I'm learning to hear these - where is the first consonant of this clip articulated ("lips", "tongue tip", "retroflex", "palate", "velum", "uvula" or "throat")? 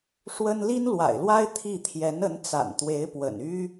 retroflex